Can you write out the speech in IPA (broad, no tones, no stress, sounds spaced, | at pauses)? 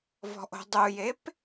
v ɔ̤ ʔ o̤ dˤ u j e p